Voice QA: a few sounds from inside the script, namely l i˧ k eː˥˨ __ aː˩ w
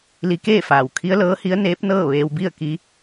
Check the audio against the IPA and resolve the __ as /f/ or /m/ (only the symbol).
f